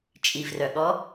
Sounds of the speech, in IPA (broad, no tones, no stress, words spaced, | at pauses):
t͡ʃʼivrœɠɔ